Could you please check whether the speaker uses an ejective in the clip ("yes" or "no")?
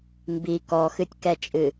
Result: yes